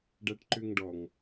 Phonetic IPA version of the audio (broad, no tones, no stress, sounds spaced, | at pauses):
ɖ æ ʈ ǃ ø ŋ ɖ ɔ ŋ